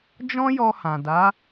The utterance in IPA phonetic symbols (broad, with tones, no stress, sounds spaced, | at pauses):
d͡ʒ ɔ̃˦ j ɔ˧ h ã˨ d a˨˦